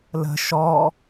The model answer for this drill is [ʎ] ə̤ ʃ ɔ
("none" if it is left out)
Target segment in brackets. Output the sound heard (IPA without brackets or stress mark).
l